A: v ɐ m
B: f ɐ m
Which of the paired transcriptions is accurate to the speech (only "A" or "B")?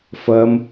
B